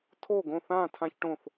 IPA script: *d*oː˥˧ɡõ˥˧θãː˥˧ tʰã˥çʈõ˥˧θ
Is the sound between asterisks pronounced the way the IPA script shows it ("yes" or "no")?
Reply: no